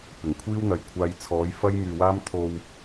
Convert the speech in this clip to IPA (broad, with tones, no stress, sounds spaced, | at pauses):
p ɪ˨˩ ŋ kʷʰ iː˥ w n̪ ɐ˨ j kʷʰ aː˧ j t͡sʰ ɔː˨˥ j f ɐ˥ j m yː˨ w aː˥ m t̪ʰ o˧ w